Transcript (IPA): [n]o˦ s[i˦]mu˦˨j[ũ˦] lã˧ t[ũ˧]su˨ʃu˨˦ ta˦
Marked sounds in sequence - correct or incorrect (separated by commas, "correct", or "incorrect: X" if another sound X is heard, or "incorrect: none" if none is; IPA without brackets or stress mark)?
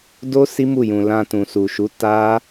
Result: incorrect: d, correct, incorrect: ũ˧, incorrect: ũ˨